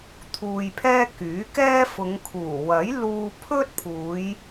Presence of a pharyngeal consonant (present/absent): absent